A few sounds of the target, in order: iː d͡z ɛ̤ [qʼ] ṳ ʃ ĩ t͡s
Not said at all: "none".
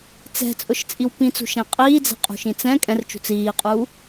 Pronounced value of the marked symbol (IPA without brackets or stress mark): qʼ